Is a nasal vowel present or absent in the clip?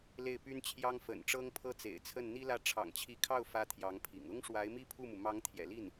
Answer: absent